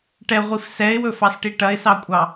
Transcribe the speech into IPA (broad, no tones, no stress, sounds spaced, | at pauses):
ʈ ɛ ʁʷ i f s ɛ ɪ̯ w ɵ f ɑ s ʈ i ʈ ɐ ɪ̯ s ɑ kʷʼ ɑ